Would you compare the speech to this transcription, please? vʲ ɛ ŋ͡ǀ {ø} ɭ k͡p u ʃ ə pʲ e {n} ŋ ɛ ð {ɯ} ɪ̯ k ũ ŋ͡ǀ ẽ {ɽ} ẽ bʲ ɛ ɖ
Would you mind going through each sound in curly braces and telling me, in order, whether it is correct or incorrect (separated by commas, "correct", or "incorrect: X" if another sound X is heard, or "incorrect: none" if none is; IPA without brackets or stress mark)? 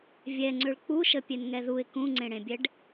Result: correct, correct, incorrect: u, correct